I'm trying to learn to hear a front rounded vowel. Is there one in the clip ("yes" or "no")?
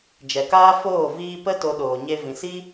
no